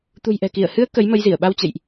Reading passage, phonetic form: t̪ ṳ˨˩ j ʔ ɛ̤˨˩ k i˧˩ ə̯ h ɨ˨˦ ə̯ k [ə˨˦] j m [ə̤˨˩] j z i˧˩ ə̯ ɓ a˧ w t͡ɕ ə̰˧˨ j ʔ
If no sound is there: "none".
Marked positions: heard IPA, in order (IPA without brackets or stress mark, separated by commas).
ə˨˦, ə˧